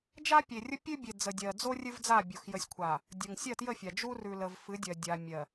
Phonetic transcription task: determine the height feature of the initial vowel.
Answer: low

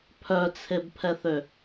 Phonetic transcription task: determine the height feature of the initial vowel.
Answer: mid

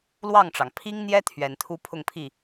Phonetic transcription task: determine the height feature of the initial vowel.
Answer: low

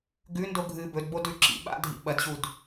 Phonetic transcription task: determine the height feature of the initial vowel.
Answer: high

